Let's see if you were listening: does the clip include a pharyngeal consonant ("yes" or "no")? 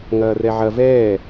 yes